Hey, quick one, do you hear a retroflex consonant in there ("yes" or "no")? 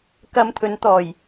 no